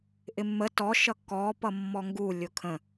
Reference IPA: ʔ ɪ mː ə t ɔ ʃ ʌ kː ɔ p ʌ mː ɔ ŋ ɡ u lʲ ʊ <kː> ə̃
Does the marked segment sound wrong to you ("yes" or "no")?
yes